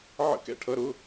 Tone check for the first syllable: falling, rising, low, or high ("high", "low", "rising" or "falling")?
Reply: falling